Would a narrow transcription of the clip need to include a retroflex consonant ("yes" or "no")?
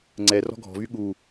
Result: no